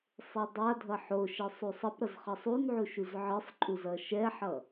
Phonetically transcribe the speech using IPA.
sˤ e dˤ a dʱ ʌ ħ o ʃ ɛ sˤ u sˤ ʌ p ɾ ʌ z χ ʌ sˤ u n ʕ u ʃ u z ʕ ɯ sˤ ǃʼ u z ʌ ʃ ɛ ħ ʌ

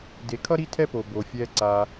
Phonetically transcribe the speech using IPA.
d e˨ kʰ ʌ˦ ɾ i˦ tʰ ɛ˦ p o˨ b o˨ fʲ ɛː˧ ǀ aː˧

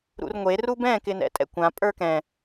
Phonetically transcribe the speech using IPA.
ɾ ṵ r ŋʷ e r u b ɛ̃ k ɪ n ɛ̰ tʼ ɛ̰ kʷ ã pʼ ə˞ k ɛ̃

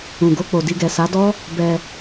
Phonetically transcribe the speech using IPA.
ũ˨ ɡ o˧ k͡p o˨ d i˧ ɡ ɛ˨ s a˨˦ d ɔ˦ | b ɛ˧

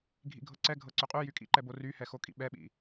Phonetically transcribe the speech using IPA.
ɡʱ ḭ ɡʱ ɤ ǀ ɛ ɡʱ ɤ ǀ ʏ qʼ y j y kʼ ḭ ǃ ɛ b o r y h ɛ x o kʼ ḭ ɓ ɛ ɓ ḭ

